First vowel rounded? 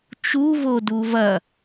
yes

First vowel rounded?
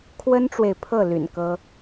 no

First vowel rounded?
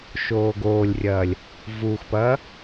yes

